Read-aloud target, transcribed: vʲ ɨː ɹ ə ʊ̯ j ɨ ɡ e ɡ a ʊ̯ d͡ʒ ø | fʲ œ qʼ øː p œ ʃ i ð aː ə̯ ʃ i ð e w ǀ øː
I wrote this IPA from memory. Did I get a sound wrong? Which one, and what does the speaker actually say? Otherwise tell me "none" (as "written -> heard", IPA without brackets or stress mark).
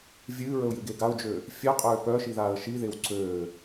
none